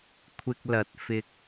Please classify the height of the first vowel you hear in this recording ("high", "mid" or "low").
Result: high